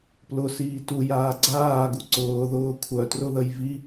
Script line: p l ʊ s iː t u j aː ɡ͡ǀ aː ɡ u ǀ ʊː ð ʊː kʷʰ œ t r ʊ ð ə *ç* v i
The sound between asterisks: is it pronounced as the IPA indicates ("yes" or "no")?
no